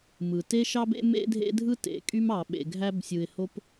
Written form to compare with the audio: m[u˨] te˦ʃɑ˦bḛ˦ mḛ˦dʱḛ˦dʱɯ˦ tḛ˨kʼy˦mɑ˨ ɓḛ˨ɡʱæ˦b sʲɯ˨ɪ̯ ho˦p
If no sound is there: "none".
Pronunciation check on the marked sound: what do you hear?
ɯ˨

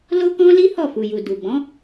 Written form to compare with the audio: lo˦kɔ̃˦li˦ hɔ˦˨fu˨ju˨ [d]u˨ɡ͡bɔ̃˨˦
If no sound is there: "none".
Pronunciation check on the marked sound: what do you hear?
d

